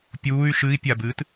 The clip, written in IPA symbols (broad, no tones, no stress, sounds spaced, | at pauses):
pʲ uː y̯ ʃ ɨ i̯ pʲ a b ɨː t